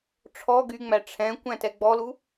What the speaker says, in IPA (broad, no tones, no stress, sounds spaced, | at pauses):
ʈ͡ʂʰ ɔ ɡ y ŋ͡m æ ʈ͡ʂʰ ɛ̃ kʷ æ̃ t ɛ ɡ͡b ɔ l u